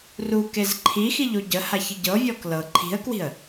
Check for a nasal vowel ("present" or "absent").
absent